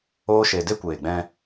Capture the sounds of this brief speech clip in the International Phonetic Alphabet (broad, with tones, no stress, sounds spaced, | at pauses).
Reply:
oː˦ ʃ e˧ d e˦ kʷ eː˨ ɡ͡b ɛ̃˧